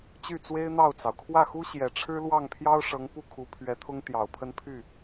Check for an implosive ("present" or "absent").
absent